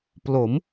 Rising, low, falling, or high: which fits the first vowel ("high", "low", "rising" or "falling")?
rising